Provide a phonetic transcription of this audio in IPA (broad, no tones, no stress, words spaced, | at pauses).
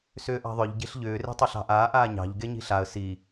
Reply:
sʏːʔɑ̤ðˤʏʎ ɟe̤ɬʎʏː re̤tˤʏɬɑ̤ʔaːʔ aːɲɑ̤ʎ ɡeɲi̤ɬaə̯ si